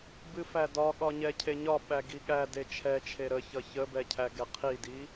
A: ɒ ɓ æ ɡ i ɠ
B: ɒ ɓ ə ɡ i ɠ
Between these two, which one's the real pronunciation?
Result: A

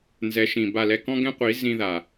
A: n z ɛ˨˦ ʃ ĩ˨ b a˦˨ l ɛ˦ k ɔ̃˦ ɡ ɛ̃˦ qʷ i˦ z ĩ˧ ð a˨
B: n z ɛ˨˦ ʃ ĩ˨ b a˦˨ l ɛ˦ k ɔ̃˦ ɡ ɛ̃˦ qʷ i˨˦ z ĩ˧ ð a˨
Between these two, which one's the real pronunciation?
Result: B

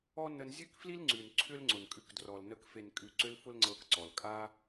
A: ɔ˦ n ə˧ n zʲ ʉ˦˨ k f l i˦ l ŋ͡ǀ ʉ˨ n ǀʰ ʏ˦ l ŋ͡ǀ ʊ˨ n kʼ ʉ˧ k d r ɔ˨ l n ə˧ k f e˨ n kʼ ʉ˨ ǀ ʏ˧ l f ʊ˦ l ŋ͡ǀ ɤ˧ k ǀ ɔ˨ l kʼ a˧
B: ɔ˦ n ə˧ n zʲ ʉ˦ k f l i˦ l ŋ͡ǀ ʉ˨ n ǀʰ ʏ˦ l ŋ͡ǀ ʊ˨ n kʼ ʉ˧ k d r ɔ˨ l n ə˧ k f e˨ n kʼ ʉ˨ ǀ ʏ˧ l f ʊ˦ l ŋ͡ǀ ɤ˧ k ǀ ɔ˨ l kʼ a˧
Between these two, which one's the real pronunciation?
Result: B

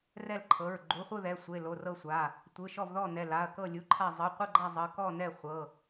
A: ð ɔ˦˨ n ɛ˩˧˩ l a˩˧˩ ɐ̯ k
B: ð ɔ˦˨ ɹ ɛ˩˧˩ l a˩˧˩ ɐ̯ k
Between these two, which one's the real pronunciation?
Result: A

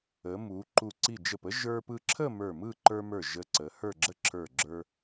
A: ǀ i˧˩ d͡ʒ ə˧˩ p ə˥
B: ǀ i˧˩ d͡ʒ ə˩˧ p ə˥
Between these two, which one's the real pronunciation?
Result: A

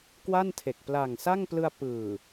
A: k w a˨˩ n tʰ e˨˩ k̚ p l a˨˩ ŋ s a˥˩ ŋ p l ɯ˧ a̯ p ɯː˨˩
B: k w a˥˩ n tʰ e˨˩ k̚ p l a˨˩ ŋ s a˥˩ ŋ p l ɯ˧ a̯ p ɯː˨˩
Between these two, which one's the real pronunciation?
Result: B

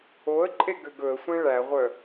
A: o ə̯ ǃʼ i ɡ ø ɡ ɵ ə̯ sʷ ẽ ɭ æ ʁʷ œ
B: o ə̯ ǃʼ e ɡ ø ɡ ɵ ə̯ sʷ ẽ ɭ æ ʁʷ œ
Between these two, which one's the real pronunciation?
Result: B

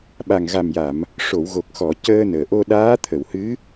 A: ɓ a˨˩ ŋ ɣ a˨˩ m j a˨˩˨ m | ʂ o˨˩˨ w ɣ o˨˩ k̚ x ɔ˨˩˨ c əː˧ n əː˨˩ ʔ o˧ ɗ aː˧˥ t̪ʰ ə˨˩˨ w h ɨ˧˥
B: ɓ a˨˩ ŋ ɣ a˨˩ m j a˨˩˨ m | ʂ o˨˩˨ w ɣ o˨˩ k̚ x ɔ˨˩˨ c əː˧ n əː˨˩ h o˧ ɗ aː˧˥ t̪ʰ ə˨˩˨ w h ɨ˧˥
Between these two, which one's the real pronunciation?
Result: A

